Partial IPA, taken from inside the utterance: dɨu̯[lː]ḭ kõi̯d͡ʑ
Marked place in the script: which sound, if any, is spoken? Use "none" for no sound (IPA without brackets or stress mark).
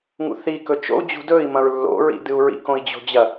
ɹ